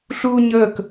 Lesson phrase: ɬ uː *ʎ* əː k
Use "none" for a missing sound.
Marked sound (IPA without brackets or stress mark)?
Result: ɲ